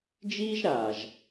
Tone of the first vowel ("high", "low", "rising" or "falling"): high